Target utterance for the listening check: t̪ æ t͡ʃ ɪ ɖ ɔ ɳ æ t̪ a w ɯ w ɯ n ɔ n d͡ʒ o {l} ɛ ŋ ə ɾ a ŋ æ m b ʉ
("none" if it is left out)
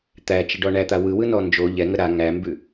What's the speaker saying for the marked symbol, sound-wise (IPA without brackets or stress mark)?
ʎ